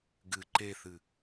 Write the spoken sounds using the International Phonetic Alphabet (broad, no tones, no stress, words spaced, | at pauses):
ɡɨ ǃeθɨ